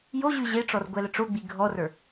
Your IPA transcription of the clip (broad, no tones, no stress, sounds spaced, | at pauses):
j o ʑ ʉ ʑ e ʈ͡ʂ ɔ r ɡʷ ɛ l ə ʈ͡ʂ o ɡ͡b i ɡʱ ɔ r ə˞